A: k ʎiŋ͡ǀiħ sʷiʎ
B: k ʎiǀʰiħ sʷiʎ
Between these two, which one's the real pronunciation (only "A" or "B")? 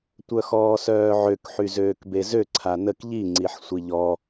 A